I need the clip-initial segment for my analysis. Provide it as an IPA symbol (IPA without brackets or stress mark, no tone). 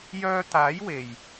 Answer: j